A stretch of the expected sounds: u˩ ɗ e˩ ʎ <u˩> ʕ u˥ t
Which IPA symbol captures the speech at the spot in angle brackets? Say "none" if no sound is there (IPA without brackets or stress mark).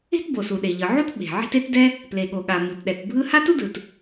ɯ˩